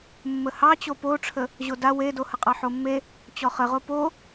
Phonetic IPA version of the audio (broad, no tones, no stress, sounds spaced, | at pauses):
mː ə h ɑ t͡ɕ o p o ʈ͡ʂʰ ə | ʑ o d a w e d o h ə qʼ ɑ ħ o mː e | t͡ɕ ɔ χ ə ʁ o p o